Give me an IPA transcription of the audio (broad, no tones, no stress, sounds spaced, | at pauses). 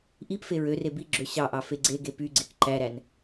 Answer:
ʔ i p f e ɹ ø r e b i ɡ͡ǁ ø ɕ ɑ ʔ ɑ f e ɡ͡ǀ e ɡ e p y ɡ͡ǀ e k ǃ æ ɾ æ n